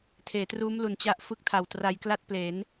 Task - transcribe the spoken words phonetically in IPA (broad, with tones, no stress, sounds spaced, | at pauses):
tʰ eː˩˦ t r uː˦˥ m l u˨˩ n t͡ɕ a˦˥ ʔ f ɯ˦˥ k̚ tʰ a˨˩ w t r a˧ j k l a˥˩ t̚ p l e˩˦ n